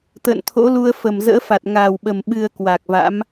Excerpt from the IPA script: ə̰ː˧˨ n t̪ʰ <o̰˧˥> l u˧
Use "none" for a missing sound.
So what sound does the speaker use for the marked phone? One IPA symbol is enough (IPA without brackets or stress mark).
o̰˧˥